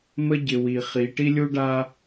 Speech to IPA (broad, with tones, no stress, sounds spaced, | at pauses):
m ə˦ ɟ ɪ˨ w i˨ χ i˨˦ ʈ i˦ lʲ u˦ ɖ a˦